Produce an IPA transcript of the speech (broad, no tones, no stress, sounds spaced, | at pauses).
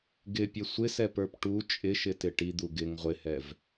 ɡ ɪ pʲ ɛ sʷ ɪ s ɛ p ə˞ p ʈ u t͡ʃʼ ɪ ʃ ɪ t ɪ ʈ i d̪ u ɡ ɪ ŋ ʁʷ ɪ h ɛ v